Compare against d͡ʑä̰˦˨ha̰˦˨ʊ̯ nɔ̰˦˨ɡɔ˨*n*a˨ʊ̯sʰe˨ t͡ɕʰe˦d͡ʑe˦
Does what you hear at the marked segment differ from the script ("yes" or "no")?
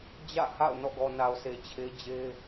no